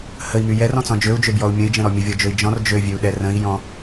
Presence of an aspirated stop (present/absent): absent